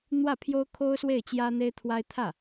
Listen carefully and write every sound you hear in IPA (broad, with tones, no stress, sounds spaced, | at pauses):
n̪ w ä˥˩ pʰ j o˥ ʊ̯ kʰ o˥ ʊ̯ s w e˥˩ ɪ̯ t͡ɕ j ä˥ n̪ e˥ ɪ̯ t̪ʰ w a˥ ɪ̯ t̪ʰ ä˥˩